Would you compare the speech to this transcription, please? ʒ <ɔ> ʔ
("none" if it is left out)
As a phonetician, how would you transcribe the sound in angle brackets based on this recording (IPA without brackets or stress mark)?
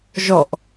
ɔ